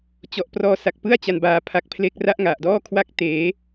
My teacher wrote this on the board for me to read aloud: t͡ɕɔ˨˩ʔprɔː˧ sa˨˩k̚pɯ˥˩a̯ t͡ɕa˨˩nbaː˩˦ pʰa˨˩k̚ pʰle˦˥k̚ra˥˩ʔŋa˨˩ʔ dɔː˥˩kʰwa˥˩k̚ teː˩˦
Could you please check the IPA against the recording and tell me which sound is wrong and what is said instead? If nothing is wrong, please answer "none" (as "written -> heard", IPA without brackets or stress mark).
none